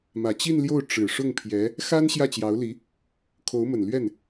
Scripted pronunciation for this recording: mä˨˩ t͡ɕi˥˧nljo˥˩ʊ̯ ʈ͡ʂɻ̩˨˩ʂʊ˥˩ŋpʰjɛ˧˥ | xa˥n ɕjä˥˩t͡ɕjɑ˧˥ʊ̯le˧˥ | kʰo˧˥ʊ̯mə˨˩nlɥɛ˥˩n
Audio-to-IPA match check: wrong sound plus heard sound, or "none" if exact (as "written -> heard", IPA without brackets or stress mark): e˧˥ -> i˧˥